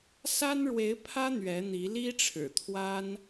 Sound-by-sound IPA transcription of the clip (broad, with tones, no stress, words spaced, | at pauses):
sa˥nɻwe˧˥ɪ̯pʰä˥ n̪ɥɛ˧˥n̪i˧˥ li˥ʈ͡ʂʰɻ̩˨˩t̪ʰwa˥n